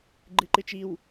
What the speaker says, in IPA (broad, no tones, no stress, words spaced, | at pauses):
ɡ͡ǃɨǃɨt͡ʃiw